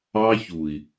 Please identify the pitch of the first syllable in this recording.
high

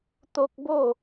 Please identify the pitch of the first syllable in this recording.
high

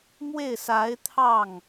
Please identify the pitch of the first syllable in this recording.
falling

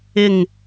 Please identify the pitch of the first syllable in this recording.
falling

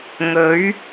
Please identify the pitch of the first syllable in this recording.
rising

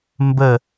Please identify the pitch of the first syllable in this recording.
falling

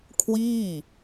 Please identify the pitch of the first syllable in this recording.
falling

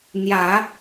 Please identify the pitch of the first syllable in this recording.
low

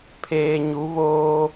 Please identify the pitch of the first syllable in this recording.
low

